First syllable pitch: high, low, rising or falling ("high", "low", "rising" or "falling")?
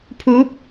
rising